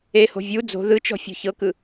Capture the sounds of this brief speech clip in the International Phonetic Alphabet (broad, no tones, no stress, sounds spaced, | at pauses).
e h o̤ vʲ u d͡z o̤ ð ɯ t͡ʃ ɔ̤ fʲ o̤ ç ɤ k ɯ